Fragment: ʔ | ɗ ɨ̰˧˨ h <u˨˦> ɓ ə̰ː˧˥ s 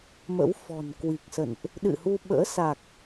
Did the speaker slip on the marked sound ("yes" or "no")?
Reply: yes